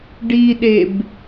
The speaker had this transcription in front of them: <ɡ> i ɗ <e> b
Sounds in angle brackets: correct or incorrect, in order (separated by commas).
incorrect, correct